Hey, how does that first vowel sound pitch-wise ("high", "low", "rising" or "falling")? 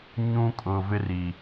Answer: high